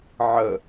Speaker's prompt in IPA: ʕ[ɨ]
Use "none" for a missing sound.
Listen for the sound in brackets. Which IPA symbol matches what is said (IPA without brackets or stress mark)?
ə